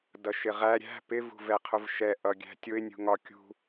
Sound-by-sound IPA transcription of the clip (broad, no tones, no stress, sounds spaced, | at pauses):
d ʌ ʃ ɪ ʁ æ ɾʲ æ̤ p ɪ v ṳ v ɛ qʰ ʊ v ʃ ɛ ʔ ʌ ɡʲ æ̤ tʲ ʊ ɪ̯ nʲ ṳ ŋ ɒ kʲ ṳ